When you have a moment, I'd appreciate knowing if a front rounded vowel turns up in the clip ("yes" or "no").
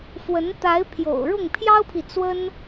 no